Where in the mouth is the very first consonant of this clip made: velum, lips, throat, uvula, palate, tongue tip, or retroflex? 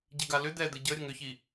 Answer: palate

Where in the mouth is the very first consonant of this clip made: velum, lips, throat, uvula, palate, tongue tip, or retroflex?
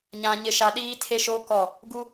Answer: palate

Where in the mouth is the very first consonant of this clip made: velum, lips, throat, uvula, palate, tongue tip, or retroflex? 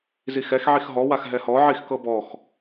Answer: tongue tip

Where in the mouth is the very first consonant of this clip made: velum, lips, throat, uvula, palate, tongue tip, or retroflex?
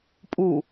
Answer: lips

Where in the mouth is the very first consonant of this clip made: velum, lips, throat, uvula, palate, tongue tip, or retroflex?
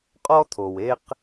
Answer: uvula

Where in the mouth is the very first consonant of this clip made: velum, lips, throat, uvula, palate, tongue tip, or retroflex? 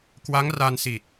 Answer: velum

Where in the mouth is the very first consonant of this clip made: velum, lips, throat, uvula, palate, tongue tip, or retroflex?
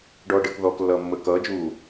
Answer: retroflex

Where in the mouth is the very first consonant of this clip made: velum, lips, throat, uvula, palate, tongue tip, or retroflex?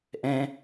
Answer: throat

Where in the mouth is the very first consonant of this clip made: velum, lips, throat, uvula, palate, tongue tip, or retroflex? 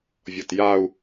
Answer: lips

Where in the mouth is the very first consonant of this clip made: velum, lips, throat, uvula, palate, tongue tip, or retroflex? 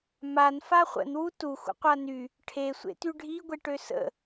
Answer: lips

